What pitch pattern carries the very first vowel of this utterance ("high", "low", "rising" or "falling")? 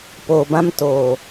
low